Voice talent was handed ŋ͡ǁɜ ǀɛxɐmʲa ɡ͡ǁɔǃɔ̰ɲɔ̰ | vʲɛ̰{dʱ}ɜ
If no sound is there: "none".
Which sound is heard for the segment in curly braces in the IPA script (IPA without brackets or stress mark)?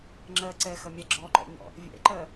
ǃ